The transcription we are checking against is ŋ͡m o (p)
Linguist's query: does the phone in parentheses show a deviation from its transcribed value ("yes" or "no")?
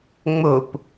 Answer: no